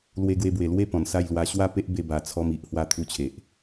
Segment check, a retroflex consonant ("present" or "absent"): absent